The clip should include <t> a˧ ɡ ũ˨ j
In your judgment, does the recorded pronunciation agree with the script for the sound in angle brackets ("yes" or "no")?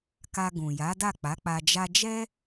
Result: no